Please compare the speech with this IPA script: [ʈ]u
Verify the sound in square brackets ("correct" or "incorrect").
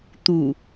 incorrect